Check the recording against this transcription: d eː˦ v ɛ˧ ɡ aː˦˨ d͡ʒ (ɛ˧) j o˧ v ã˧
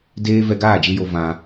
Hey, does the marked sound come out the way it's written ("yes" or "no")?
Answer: no